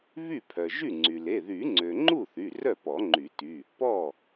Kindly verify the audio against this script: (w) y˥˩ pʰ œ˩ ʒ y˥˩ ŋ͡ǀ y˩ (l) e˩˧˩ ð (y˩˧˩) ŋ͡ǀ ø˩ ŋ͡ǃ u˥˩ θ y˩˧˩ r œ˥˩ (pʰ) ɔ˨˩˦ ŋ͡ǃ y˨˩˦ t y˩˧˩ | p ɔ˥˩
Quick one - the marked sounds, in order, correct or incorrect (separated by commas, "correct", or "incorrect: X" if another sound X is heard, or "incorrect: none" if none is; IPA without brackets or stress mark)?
incorrect: β, correct, incorrect: y˨˩˦, incorrect: p